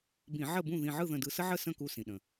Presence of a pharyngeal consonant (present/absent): present